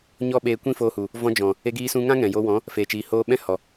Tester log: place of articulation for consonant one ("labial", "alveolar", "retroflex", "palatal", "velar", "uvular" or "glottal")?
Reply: palatal